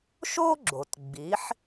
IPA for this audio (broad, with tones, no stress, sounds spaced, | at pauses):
ʃ o˥ ɡ͡ǁ o˩ t ɡ͡b i˩˥ ħ